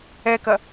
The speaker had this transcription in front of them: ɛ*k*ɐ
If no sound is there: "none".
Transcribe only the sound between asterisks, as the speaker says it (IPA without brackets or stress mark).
k